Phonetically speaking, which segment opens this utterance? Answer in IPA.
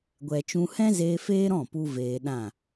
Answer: ɡʷ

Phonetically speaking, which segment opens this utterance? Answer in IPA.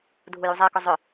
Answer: dʱ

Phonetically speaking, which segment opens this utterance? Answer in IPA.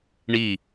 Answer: ɳ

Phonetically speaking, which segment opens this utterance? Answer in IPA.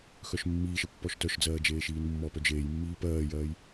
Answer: x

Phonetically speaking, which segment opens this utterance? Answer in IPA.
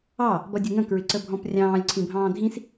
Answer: ɑ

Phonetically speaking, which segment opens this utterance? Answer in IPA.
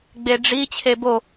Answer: ɡ͡b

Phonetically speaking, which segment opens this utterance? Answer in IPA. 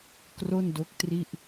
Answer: k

